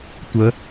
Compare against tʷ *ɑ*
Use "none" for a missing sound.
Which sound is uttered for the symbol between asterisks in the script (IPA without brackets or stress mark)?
ə